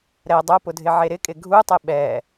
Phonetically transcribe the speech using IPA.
ɾ ɛ dˤ o p ʊ dʱ ɪ ʕ e ɾ ɪ kʼ ɪ ɡʱ u tˤ ɪ ɓ ɛ

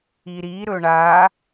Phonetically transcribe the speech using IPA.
i ɾ i ɾ ɵ ɳ a

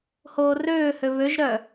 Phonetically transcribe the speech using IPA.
h oː r øː h ø β ø ʒ ɾ œ

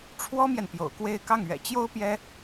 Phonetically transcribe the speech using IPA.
ʈ͡ʂʰ w ɔ˥ m j ɛ˨ n p j o̰˨˩ ʊ̯ k w e˥˧ ɪ̯ k ɑ˥˩ ŋ ɥ ɛ̰˨˩ t͡ɕ j o˥ ʊ̯ p j ɛ˥

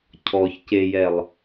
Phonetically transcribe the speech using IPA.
cʰ ɔ ç c e j ɛ lˠ

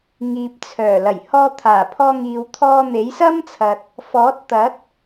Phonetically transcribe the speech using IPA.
ŋ iː˨ p̚ t͡sʰ œː˨˩ l ɐ˨˩ j h ɔː˧ t̪ʰ aː˨˩ pʰ ɔː˧ ŋ iː˨ w t̪ʰ ɔː˧ n̪ e˨˥ j s ɐ˥ m t͡sʰ ɐ˨ t̚ | f ɔː˨˥ t̚ t̪ ɐ˨˥ t̚

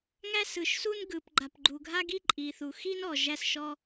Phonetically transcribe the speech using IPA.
ŋ æ˥ s ɯ˩ ʃ s u˥ n ɡ ɯ˩ p ɡ͡ǃ a˩ p ɡ͡ǃ u˩ ɡʱ a˥ ɡ i˥ ǃʼ i˩ θ u˩ x i˥ n ɔ˩ ʒ æ˥ s ʃ ɔ˥

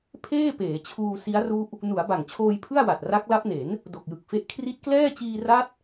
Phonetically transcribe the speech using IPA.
pʰ eː˥˩ p eː˩˦ t͡ɕʰ uː˧ s i˦˥ a̯ r u˦˥ ʔ | n u˩˦ a̯ b a˨˩ ŋ t͡ɕʰ oː˧ j pʰ ɯ˥˩ a̯ w a˨˩ t̚ r a˦˥ k̚ l a˦˥ p̚ n e˩˦ n | d o˨˩ k̚ j ɯ˨˩ k̚ f e˦˥ ʔ kʰ r i˦˥ t̚ k l ɛː˥˩ t͡ɕ iː˧ r a˦˥ t̚

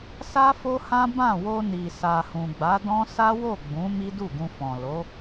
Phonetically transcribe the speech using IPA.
s a˦ f o˦ h ã˦ b ã˦˨ w o˧ n i˨ s a˨ h ũ˨ ɡ͡b a˨˦ d ɔ̃˦ s a˦ w o˦˨ ɡ͡b ũ˨˦ m i˦ d u˦˨ ɡ ũ˧ f ɔ̃˨ l o˨˦

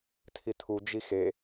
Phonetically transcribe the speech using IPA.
tʰ i tʰ u d͡ʒ i x e

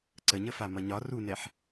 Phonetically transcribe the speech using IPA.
ǀ ə ɲ ə f a m ʌ ɲ ɒ r u n ɛ ħ

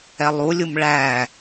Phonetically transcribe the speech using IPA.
ɛ lˠ u lʲ u m ɭ æ

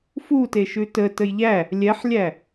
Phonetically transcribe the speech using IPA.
f u t e ʃ ʉ t ə t ə j ʎ æ | lʲ ɛ ħ lʲ æ

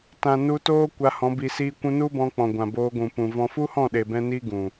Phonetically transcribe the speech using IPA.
t ã˨ n u˧ t oː˦ kʷ a˧ h ɔ̃˨˦ b i˨ s iː˧ kʷ ũ˧ n u˦ b ɔ̃˧ k͡p ɔ̃˨ ɡʷ ã˨ b oː˧ ɡʷ ũ˨ p ũ˨ v ɔ̃˧ f u˦ h ɔ̃˦˨ ɗ eː˨ b ɛ̃˧ n iː˦ ɡ ũ˨

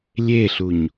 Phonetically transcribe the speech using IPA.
lʲ e ɬ u ɲ

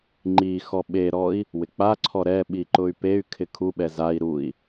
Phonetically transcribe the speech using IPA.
ŋ͡ǃ i x ɔ ɓ e ɾ ɔ i̯ | w ɪ k͡p a ǀʰ ɔ ɾ ɛ ɓ i ǃ ʊ y̯ p e y̯ kʰ ɪ kʰ u ɓ ɛ z a i̯ ɾ u i̯

